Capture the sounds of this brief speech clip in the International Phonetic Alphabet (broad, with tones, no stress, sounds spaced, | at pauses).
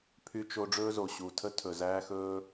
pʰ y˧ t͡ʃ o˧ ɖ͡ʐ ɵː˦ z o˨ ɕ u˨ tʰ ə˦ tʰ ɵ˨ z æː˦ x ɵː˦